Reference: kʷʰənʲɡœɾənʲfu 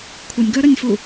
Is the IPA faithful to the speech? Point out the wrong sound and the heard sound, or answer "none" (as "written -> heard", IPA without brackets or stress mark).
none